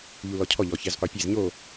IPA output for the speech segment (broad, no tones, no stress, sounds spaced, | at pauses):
ʎ u l ɔ cʰ ɔ ʎ ɔ ç ɛ z qʷ e pʲ e z ɲ o